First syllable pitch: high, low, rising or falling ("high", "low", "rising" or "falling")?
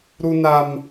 high